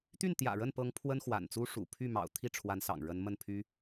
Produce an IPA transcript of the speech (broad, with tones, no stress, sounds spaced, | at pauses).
t̪ y˥˩ n t̪ j ä̰˨˩ ɻ ə˥˩ n p ɤ˧˥ ŋ pʰ w ə˥ n x w a̰˨˩ n t͡s u˥ ʂ ṵ˨˩ pʰ y˥˩ m ɑ̰˨˩ ʊ̯ t̪ʰ i˥˩ ʈ͡ʂʰ w a˧˥ n s ɑ̰˨˩ ŋ ɻ ə˧˥ n m ə˥˩ n pʰ y˥